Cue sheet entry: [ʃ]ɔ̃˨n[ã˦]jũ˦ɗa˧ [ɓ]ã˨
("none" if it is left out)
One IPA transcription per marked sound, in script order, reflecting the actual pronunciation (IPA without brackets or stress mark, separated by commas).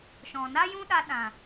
ʃ, a˦, ɗ